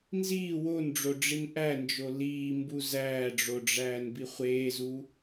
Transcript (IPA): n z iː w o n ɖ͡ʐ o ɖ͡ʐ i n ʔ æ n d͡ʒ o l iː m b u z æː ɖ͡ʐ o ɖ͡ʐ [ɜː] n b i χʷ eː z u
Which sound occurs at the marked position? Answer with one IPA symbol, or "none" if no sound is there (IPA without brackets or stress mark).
æː